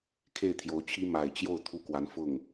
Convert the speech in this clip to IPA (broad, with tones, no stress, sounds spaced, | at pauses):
kʰ e˥˩ ɪ̯ t̪ʰ j o˧˥ ʊ̯ t͡ɕʰ i˥ m a˨˩ ɪ̯ t͡ɕ j o˥˩ ʊ̯ t̪ʰ u˥ k w a˧˥ n f ʊ˥˩ ŋ